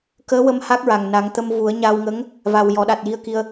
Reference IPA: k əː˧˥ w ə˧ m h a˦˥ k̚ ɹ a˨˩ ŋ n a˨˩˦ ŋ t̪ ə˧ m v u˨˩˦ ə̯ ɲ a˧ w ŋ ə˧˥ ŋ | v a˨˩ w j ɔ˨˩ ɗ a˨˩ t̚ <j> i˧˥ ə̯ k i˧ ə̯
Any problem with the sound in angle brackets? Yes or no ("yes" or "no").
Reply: no